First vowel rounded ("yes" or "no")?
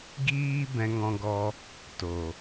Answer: no